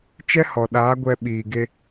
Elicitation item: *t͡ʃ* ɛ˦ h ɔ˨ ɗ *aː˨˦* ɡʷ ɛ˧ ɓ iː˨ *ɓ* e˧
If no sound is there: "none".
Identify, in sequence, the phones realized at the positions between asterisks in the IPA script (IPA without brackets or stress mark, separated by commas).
t͡ʃ, aː˨˦, ɡ